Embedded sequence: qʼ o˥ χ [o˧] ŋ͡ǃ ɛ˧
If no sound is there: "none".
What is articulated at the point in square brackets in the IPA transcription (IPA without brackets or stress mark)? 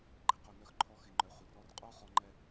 ɔ˧